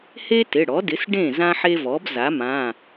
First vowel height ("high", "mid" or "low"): mid